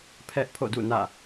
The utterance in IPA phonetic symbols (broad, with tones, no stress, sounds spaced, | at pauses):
pʰ ɛ˦ ʔ pʰ o̰˦˨ d ṵ˦˨ n ä̰˦˨